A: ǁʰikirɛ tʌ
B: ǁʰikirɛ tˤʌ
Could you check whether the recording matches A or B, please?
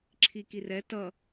A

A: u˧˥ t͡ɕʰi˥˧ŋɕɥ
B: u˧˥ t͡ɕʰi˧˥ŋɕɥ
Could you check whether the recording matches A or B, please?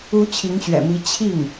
B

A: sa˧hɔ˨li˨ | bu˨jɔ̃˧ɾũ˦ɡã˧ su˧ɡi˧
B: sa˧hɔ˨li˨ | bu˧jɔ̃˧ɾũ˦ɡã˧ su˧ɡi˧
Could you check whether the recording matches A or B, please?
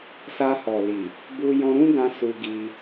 B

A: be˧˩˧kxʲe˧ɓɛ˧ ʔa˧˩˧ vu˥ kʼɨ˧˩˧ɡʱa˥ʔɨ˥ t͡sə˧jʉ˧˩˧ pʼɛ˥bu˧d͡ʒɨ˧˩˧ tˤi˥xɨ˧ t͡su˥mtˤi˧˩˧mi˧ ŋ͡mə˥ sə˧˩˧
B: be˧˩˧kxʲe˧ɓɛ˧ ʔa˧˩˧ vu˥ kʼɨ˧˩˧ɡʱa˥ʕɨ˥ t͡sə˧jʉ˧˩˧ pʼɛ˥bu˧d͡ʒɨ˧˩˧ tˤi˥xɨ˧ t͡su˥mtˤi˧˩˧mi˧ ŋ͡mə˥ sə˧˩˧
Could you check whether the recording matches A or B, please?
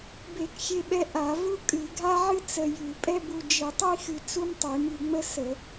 B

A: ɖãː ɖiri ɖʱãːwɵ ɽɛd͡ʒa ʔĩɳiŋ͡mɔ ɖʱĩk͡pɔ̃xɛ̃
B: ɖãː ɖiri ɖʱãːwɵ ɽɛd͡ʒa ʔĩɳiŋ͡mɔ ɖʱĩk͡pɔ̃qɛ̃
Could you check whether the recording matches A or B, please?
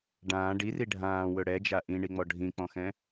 A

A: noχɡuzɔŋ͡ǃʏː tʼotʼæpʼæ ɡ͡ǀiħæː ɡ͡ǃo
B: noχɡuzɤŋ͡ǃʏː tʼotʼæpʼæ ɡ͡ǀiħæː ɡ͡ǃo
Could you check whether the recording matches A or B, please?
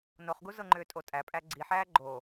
B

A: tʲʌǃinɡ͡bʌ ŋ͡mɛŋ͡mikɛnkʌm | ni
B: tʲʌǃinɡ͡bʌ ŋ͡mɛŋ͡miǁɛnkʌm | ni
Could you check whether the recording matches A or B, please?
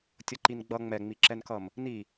B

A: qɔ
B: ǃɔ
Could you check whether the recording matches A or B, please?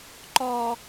B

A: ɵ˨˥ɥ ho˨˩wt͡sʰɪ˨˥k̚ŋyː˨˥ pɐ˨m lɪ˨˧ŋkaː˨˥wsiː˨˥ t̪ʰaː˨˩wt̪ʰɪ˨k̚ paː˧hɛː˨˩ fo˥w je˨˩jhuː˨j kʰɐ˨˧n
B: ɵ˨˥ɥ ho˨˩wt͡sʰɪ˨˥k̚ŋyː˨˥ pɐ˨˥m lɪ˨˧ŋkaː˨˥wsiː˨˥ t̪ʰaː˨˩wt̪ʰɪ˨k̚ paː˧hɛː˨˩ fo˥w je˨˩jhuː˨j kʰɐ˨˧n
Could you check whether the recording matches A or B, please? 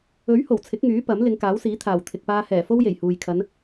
B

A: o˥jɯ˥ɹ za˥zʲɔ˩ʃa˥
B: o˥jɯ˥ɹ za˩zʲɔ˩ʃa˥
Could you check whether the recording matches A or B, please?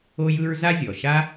A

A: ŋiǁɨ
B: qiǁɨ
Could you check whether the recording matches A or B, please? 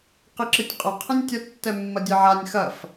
B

